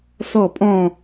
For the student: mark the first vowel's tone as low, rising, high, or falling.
falling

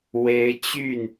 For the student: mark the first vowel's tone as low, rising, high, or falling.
rising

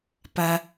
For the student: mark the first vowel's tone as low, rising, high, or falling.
high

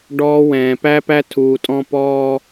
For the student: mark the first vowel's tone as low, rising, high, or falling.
high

